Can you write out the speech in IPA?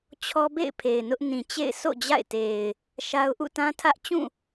t͡ɕʰɔ˦bḛ˦˨ɪ̯ pʰe˨ɪ̯nʊ˦ʔ nĩ˨t͡ɕḛ˦˨ɪ̯ so̰˦˨ d͡ʑa̰˦˨ɪ̯te˨ɪ̯ | ʃa˦ʊ̯ ʔṵ˦˨tã˦tʰä˦ʔ t͡ɕũ˦˨

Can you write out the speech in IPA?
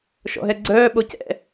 ʃɔ̰ɦɛɡ͡ǀœː ɓocɛ̰

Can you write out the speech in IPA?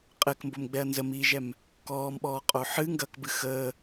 qʼɘkmbomɡ͡bɛɐ̯ nzəmiːʒɛm | kɔːmɓɔːqʼo ħɨ ŋɡɐkbɨ xəː

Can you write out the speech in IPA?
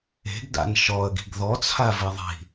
e̤ɡda̰n ʃɔə̯ɡi̤ɡ ðɔt͡sʰaviðˤi̤

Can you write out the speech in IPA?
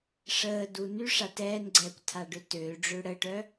ʂəːdu nyʂa tɛːnɡ͡ǀɛːkʷ tʰaɖøtøːɖ͡ʐø ɽəʈœ

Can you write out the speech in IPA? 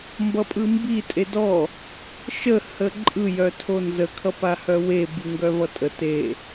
mbʌpʼɯmbi tʼedɔ | ʃə həǃʼɯ jœtʰonzə kʰʌpahœwe biŋɡœvʌtʼə te

